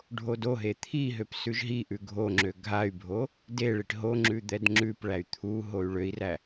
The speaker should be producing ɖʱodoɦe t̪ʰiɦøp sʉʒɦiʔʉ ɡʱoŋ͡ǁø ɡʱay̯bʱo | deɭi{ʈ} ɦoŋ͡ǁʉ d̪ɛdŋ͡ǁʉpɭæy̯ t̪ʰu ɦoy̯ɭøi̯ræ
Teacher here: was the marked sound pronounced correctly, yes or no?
yes